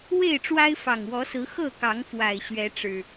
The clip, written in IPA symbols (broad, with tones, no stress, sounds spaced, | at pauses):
w e˥˨ ɪ̯ ʈ͡ʂ w a˦ ɪ̯ f ɑ˨˩ ŋ w ɔ˨˦ s ɹ̩˨˦ x ɤ˥˨ k ɑ˨˦ ŋ f w a˨˩ ɪ̯ ɕ ɥ ɛ˨˦ ʈ͡ʂ ɻ̩˨˩